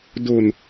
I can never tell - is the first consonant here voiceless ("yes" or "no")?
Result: no